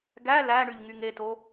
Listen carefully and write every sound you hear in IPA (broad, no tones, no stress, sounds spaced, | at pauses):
ɡ æ l æ ɳ y ʎ ŋ y ŋ e t o